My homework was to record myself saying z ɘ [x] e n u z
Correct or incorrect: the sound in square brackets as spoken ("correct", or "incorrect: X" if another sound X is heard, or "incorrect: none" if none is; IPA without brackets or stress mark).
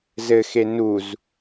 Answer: correct